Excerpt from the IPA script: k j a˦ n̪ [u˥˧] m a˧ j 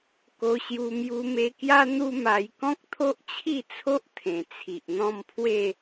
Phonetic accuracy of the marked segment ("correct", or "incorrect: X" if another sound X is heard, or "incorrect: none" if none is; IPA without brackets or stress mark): incorrect: u˦